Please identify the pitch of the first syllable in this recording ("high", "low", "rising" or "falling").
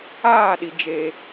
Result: falling